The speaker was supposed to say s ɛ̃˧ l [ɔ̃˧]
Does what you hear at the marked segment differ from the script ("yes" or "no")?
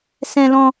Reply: no